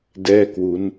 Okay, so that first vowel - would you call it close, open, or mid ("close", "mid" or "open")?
mid